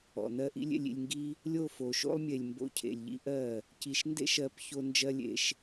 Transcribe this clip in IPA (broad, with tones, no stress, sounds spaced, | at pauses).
ɔ̰˨ n̪ ɜ˦ ʔ ḭ˦ lʲ ḛ˧ lʲ ḭ˧ lʲ ŋ ɡ i˦ | lʲ o˦˨ f o˨ ʃ o̰˦ lˠ mʲ e˨ lʲ m b o̰˧ cʰ ḛ˨ lʲ ʎ ḭ˦ ʔ ɜ˦˨ | c i˨ ʃ n d ḛ˦ ʃ ɜ˨˦ p ç o˧ n d͡ʒ ɜ˦ lʲ ḛ˧ ʃ